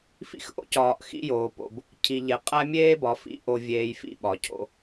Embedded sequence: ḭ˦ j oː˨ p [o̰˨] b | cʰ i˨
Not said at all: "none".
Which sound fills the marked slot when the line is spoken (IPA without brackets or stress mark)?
o̰˨